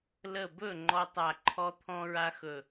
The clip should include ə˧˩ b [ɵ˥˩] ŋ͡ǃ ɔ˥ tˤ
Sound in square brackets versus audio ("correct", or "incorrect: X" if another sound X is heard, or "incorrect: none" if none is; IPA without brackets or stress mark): correct